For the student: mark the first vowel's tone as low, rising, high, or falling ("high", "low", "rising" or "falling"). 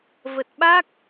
low